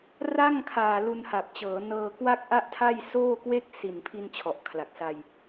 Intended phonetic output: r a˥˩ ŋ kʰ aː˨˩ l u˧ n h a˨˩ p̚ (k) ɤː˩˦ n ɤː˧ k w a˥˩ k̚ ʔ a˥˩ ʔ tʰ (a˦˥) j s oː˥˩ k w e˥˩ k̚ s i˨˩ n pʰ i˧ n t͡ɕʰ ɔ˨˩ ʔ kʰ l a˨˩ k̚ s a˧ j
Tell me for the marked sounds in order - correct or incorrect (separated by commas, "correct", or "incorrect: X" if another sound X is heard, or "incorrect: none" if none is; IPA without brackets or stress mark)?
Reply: incorrect: t͡ɕ, incorrect: a˥˩